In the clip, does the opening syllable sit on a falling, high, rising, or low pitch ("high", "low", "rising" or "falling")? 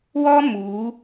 high